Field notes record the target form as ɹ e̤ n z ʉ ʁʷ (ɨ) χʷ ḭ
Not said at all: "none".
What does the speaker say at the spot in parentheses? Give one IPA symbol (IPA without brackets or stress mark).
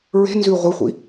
ɨ